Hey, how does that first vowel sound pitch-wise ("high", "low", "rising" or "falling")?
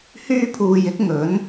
high